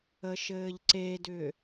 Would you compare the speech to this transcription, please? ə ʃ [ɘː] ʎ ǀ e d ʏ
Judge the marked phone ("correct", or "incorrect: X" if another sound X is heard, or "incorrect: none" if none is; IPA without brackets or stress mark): correct